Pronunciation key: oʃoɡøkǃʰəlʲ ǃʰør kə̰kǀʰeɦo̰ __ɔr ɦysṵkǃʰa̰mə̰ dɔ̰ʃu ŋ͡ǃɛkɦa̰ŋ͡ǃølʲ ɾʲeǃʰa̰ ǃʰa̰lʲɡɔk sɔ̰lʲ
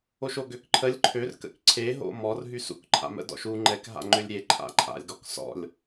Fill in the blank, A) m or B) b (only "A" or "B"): A